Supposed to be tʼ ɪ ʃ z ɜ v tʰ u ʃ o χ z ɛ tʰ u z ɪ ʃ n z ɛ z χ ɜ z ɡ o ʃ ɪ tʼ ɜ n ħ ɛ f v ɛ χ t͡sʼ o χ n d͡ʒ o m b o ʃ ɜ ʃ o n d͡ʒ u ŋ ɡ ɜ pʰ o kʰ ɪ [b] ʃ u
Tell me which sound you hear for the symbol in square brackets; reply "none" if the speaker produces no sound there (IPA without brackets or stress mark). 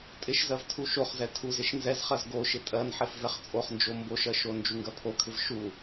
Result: v